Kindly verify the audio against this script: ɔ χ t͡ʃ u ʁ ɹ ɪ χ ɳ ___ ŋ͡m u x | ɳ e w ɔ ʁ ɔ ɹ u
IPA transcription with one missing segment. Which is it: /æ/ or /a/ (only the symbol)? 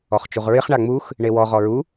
a